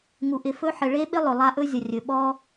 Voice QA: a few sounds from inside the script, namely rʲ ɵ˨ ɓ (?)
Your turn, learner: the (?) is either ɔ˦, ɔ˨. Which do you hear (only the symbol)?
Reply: ɔ˦